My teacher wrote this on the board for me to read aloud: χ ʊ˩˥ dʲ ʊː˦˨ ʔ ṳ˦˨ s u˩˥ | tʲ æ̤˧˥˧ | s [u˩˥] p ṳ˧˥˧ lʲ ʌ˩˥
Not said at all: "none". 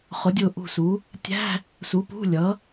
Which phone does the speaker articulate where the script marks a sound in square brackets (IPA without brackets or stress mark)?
u˩˥